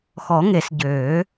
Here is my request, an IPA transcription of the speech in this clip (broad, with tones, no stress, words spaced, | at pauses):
xɔ˨˩˦ŋe˨˩˦s ɟøː˨˩˦